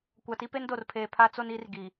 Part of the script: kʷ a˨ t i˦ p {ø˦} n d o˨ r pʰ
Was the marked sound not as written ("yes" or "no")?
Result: yes